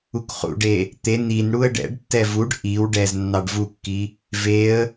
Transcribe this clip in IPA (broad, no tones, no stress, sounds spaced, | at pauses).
u k χ ṵ ɖ e | t̪ e n i n ɽ u ə̯ ɖ ɛ̰ ɖ tː ɛ v u ɖ ʔ i w ɖ ɛ z nː ɑ ɖ v u kː i | v e ə̯